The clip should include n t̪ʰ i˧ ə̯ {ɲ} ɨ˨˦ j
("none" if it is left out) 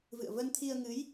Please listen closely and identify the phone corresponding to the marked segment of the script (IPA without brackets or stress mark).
ŋ